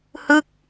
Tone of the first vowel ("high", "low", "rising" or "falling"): falling